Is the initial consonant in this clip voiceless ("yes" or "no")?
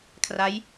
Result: yes